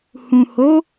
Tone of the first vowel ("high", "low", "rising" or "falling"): low